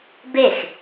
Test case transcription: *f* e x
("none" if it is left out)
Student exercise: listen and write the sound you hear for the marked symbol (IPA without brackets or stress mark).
b